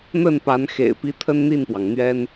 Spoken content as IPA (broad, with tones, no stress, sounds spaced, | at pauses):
n̪ ə˥˩ n p a˧˥ n x ḛ˨˩ ɪ̯ p i˧˥ t̪ʰ ə˥ n n̪ i˥˩ n p w ɑ˩ ŋ n̪ ɥ ɛ˥ n